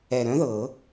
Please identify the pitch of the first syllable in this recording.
low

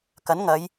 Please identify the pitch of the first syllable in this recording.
rising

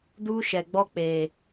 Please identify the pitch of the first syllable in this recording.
high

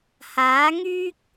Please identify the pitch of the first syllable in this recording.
rising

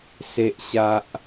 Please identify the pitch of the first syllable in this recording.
low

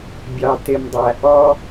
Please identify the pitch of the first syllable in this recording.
low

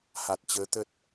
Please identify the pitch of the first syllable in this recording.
low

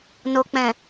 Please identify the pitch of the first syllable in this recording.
low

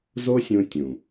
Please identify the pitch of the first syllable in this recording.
high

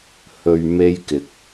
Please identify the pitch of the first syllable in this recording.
low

